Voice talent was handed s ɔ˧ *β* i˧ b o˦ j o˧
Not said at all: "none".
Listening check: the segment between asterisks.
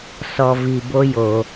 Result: v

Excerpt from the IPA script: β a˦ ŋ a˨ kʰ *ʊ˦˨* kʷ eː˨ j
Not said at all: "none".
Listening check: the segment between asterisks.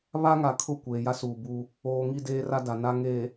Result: ʊ˦˨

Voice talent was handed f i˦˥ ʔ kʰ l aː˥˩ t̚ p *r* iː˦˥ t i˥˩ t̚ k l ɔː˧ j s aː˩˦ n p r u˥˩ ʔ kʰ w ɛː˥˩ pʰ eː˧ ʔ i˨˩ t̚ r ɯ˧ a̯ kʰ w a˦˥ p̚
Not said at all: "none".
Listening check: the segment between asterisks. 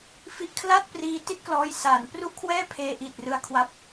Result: r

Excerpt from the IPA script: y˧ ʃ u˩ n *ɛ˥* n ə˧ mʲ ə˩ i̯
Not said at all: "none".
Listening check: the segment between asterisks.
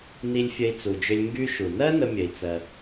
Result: ɜ˥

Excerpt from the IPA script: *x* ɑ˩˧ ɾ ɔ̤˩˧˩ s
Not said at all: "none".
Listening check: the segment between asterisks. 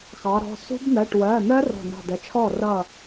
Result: x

